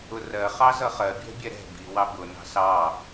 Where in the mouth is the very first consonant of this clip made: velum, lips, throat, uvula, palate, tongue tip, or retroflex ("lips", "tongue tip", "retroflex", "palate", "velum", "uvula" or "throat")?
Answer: tongue tip